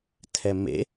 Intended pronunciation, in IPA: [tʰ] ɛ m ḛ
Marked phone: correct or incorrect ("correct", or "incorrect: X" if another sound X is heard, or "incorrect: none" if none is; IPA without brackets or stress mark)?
correct